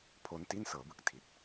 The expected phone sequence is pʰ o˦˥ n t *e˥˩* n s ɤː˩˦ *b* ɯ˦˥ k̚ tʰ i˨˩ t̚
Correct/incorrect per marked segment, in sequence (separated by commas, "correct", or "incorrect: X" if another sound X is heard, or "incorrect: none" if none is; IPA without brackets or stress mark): incorrect: i˥˩, correct